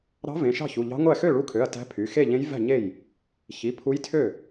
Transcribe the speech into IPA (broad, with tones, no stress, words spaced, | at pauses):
ɾɑ̤˧˥ vẽ˩˧˩ʃɑ̤˥˩çu˩˧˩ʎɑ̤˧˥ ŋʷæ˥˩ xø˥˩ɭu˧˥kʰø˩˧˩ɐ̯ tæ̤˧˥pʰy˩˧˩ xe˥˩ʎẽ˧˥jvæ̤˥˩ɲe˥˩j | çi˩˧˩ pʰu˧˥jtʰø˥˩